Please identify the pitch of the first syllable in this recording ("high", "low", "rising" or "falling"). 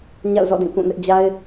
falling